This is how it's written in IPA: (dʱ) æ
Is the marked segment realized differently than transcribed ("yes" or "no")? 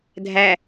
no